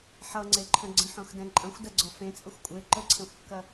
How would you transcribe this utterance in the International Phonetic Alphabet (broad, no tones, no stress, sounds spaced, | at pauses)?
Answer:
ħ ʌ ŋ͡ǀ e ǃʰ ə̃ ɡ͡ǀ ə̃ ħ õ x d ɛ̃ ǃʼ ɐ̃ xʷ d ɐ ɡ͡ǀ ɔ f ẽ t͡sʼ ə xʷ kʷʼ e ǃ ə ǀʰ ɛ̃ xʷ kː ɐ